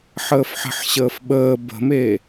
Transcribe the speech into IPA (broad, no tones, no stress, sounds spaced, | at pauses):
ħ əː f ħ ə̤ ħ ɕ əː f ɓ əː b ə̤ m e